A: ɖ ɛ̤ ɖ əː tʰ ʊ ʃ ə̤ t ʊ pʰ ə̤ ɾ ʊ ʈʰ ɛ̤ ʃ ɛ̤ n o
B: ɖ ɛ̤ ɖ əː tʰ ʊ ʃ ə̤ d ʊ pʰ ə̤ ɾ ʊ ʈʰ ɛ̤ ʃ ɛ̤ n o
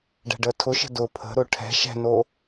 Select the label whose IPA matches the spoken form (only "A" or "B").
B